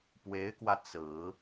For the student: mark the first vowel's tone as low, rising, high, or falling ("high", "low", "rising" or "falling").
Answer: rising